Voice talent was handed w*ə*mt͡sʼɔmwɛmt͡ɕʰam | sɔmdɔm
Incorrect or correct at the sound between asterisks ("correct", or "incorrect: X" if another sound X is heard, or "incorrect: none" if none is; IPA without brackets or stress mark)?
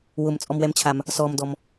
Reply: incorrect: ʊ